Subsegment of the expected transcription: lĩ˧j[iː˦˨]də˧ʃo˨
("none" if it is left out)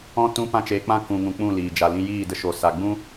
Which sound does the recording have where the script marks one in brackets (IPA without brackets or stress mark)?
iː˦˨